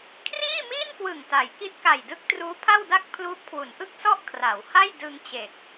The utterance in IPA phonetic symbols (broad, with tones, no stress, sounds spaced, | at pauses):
kʰ r iː˥˩ m iː˥˩ n k w ɯ˨˩ ŋ t a˩˦ j k i˦˥ t̚ k a˨˩ j d ɯ˦˥ k̚ t r uː˦˥ pʰ a˥˩ w d a˥˩ k̚ pʰ l uː˦˥ p̚ kʰ w u˩˦ n ʔ ɯ˥˩ k̚ s ɔ˥˩ ʔ kʰ r a˩˦ w h a˥˩ j d ɯ˧ ŋ t͡ɕ e˨˩ k̚